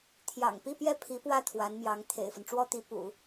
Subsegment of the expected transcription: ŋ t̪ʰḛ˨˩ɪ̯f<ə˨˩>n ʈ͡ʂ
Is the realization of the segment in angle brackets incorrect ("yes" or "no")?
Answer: yes